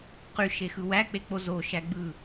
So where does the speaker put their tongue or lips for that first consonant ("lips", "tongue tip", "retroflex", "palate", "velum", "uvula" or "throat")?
uvula